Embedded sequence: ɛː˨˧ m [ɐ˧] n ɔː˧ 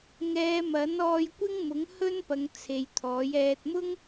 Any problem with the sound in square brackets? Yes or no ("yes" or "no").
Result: yes